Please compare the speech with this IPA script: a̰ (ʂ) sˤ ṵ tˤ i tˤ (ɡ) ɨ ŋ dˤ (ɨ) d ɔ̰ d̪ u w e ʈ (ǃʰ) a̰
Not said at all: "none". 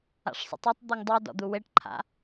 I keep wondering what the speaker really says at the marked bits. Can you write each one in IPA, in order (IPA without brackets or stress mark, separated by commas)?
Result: ʂ, d̪, ɨ, ǃʰ